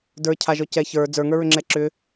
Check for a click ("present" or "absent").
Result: present